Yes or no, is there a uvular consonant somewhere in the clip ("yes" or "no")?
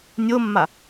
no